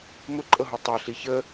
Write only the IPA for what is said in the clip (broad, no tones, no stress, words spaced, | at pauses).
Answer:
mʊǃʼɤɦu tˤɤ ɬiçə